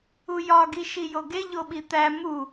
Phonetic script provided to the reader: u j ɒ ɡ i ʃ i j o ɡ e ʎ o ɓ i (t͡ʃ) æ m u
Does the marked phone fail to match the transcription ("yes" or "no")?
yes